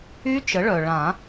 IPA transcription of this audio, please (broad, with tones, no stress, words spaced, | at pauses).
y˦˥ t͡ʃə˩˥ɭœ˩ ɭã˨˩˦